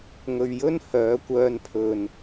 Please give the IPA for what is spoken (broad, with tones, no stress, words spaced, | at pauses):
ŋɵ˨ɥjɵ˥n hœː˨˥ kʷœː˧npʰɵ˨n